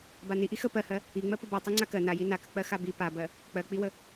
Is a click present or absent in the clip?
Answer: present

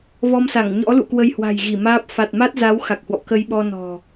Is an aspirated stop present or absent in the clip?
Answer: absent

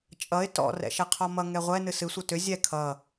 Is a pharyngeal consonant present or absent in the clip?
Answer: absent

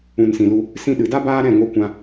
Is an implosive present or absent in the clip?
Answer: present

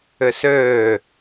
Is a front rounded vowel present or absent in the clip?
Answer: present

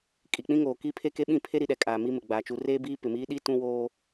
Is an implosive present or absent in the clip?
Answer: present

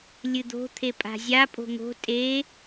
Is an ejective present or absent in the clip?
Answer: present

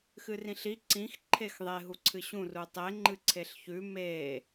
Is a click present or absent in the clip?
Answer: present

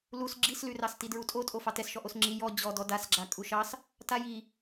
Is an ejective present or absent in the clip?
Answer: present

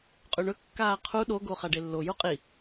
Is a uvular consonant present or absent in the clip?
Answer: present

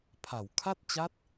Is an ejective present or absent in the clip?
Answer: absent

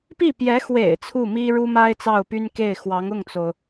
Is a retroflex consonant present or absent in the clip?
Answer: present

